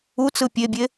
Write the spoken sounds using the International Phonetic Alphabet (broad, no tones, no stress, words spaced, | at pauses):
ut͡sɯ pʲebʲe